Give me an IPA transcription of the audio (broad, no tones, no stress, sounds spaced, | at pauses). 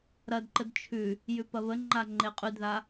ɾ ɐ d ǃ ə d t͡ʃʰ ʉ | j ʉ p ɐ β ə ŋ͡ǃ a ŋ͡ǃ e qʼ ʉ d ð a